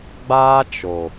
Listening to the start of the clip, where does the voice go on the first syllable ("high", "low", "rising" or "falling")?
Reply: high